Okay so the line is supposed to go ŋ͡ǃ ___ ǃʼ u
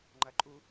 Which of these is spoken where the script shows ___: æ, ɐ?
ɐ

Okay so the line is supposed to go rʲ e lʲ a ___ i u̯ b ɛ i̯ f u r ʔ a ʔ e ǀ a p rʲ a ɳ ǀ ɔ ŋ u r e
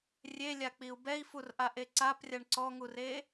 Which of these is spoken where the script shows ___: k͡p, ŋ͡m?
k͡p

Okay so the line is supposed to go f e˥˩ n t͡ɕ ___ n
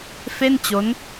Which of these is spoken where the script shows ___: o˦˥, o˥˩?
o˦˥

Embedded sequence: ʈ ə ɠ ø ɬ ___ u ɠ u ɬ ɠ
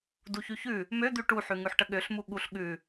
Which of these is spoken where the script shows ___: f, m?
m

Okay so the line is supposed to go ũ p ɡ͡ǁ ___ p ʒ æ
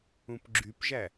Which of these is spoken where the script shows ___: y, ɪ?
y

